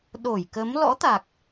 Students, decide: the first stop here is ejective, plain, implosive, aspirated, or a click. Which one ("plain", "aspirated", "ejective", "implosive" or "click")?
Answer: implosive